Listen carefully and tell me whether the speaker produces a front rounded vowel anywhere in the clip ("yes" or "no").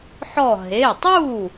no